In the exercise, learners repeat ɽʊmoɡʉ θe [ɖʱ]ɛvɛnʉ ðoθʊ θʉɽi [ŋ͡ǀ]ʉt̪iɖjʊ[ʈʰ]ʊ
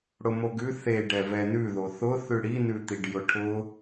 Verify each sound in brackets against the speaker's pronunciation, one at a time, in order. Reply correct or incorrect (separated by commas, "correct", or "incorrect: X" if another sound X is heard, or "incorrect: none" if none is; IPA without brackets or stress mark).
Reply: incorrect: ɖ, incorrect: n, correct